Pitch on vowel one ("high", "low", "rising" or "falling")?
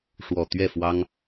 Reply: low